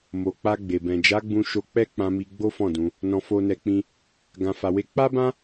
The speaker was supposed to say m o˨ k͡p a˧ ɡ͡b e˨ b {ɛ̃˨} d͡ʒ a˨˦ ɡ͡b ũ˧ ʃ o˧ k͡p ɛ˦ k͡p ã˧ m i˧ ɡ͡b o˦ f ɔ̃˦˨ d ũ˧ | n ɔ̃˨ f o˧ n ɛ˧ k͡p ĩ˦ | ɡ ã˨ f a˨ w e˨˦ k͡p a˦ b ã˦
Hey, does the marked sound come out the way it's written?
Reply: yes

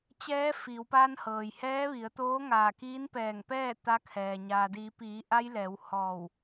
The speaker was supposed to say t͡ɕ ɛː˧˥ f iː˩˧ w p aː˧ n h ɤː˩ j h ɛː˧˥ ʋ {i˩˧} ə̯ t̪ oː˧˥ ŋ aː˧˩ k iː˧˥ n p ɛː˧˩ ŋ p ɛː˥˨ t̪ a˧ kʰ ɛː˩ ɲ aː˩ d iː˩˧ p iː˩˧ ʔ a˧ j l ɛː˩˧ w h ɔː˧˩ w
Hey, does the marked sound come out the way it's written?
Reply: yes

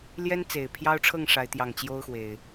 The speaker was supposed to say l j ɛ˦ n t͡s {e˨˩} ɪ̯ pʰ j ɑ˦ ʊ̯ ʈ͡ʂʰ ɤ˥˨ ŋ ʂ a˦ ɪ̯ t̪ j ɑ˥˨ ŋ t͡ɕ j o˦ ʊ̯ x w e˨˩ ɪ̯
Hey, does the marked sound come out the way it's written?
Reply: yes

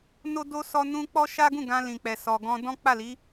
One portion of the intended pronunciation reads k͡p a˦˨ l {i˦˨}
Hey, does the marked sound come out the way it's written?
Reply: no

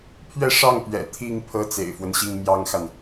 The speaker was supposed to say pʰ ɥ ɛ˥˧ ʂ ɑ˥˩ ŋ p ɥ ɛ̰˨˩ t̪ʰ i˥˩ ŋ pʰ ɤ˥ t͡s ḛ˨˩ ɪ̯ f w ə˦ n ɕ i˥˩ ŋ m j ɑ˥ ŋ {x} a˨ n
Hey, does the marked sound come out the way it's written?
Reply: yes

